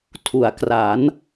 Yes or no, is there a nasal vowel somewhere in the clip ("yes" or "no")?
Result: no